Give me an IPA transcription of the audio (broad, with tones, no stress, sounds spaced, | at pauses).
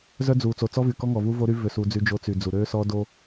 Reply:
z œ˦ d͡z u˨ t͡s o˨ t͡s ɔ˦ v y˨ k ɔ˦ ŋ ɔ˨ v u˦ v o˦ ɾ y˦ v ø˦ s u˨˦ d͡z y˦ d͡ʒ o˦ t͡s y˨ d͡z u˨ ɾ ø˦ s ɔ˦ d o˦